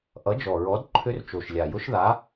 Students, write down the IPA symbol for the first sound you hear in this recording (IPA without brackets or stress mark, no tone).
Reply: ʔ